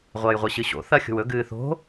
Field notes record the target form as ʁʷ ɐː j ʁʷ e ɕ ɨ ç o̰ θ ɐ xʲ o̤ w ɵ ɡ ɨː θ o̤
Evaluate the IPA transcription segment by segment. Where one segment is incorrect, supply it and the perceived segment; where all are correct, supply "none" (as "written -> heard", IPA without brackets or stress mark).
ç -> ɕ